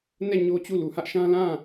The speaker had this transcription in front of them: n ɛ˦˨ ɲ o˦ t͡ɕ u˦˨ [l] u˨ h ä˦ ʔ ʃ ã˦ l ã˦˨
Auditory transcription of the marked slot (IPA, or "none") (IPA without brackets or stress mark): l